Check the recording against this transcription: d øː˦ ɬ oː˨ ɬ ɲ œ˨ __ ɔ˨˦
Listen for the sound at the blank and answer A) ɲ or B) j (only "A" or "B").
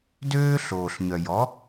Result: B